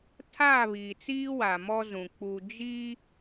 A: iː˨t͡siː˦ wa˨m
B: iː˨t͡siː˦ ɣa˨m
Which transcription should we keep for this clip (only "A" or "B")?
A